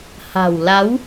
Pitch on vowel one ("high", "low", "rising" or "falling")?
low